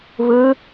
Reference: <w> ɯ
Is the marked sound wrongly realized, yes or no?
yes